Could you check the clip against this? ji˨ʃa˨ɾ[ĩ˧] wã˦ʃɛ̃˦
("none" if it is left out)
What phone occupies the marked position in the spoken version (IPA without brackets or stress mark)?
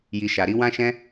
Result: i˧